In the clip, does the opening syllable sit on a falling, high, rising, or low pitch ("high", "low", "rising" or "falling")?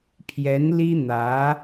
rising